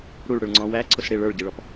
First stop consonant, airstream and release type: click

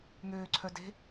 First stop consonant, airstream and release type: click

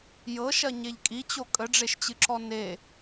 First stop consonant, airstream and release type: ejective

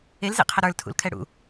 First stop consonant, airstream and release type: aspirated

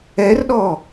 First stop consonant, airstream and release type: implosive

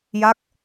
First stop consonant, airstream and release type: plain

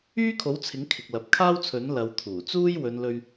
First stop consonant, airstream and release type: aspirated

